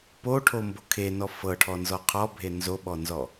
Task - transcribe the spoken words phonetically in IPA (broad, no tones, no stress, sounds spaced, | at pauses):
p o ʈʰ o m b o kʰ e n ɔ f ɤ ʈʰ ɔ n z ɔ qʰ ɔ bʱ e n z o ɓ ɔ n z ɔ